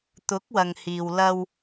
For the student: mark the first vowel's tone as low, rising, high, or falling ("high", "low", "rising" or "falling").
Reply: rising